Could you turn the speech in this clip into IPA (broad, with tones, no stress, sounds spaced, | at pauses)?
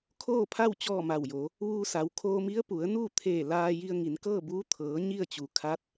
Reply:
kʰ oː˥˨ pʰ a˥˨ w t͡ɕ ɔː˥˨ m a˧˩ w j o˩˧ | ʋ uː˧ s a˩˧ w kʰ oː˧ m i˧˥ ə̯ p u˩˧ ə̯ n uː˥˨ t̪ʰ eː˧˩ l aː˧ j i˧ ə̯ ŋ i˩˧ n k ɤː˥˨ b uː˧˥ t̪ʰ ɤː˩˧ ɲ i˥˨ ə̯ t͡ɕ u˩ kʰ a˧˥ t̚